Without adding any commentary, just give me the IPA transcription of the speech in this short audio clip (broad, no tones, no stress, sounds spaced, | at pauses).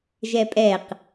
ʒ ɛ pʼ ɛ q